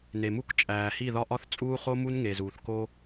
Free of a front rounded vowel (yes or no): yes